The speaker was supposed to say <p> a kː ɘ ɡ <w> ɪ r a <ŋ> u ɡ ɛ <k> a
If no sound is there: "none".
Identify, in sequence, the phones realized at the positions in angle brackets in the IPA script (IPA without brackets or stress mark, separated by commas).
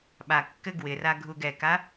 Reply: ɓ, w, ɡʱ, k